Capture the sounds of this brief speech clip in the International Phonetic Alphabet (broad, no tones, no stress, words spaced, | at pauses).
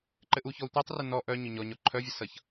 ǃɘʔuçɔu̯ tʷɛtˤrɘ nɔ ʔœɲʊ ɲɔɲɔ ǃʰœvʲʌ sʌç